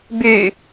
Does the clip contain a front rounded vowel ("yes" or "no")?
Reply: yes